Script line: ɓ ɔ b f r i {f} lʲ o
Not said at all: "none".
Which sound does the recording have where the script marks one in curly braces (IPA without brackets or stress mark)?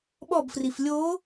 f